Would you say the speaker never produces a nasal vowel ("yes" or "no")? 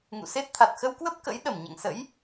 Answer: yes